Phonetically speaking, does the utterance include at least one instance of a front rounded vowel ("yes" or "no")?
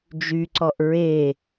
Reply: yes